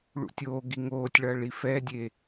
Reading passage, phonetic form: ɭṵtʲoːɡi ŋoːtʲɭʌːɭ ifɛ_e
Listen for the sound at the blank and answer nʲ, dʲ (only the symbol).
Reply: dʲ